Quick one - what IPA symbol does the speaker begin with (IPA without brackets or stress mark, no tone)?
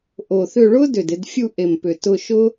ʔ